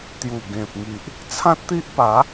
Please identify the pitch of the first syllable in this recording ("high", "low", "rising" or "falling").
low